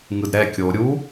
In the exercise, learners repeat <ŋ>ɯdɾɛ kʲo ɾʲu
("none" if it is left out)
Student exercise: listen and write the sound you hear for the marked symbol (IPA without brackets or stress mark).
ŋ